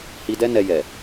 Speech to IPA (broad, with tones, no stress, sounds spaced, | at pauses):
h i˧ d ɛ˦ n ɛ˧ j ɛ˨